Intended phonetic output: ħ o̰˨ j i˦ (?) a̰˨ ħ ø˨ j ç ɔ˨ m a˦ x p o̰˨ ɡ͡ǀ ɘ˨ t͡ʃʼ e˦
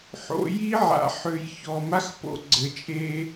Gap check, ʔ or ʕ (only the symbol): ʕ